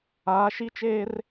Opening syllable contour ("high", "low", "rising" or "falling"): rising